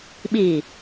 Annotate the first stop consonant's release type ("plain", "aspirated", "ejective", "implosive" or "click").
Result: implosive